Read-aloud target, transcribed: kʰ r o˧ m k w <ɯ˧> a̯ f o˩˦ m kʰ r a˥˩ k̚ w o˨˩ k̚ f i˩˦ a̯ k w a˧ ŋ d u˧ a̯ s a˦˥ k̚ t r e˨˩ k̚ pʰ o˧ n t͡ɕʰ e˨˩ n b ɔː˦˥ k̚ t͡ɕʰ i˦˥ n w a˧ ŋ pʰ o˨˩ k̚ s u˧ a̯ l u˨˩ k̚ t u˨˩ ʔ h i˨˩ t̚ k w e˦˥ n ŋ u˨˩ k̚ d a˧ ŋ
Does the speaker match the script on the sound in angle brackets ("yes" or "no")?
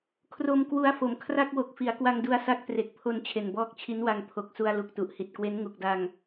no